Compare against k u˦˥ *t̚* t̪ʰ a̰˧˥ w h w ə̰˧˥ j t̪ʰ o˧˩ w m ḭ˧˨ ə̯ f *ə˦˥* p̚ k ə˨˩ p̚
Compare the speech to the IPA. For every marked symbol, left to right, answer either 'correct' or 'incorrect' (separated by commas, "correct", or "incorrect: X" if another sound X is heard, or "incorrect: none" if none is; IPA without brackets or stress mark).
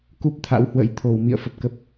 incorrect: p̚, incorrect: ə˨˩